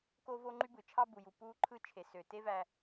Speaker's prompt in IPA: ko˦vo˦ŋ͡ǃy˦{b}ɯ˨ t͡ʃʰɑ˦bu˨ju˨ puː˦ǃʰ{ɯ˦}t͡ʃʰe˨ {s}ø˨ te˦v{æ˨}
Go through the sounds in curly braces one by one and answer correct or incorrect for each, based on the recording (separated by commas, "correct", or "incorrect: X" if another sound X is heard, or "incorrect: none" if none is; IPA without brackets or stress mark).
correct, correct, correct, correct